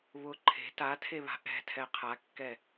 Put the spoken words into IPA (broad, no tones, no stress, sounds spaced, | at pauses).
β ʊ ǃʰ e̤ t a tʰ e β a̤ ʔ ɛ̤ tʰ ɛ qʰ a kː ɛ